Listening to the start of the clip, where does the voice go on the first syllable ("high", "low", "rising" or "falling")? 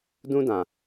high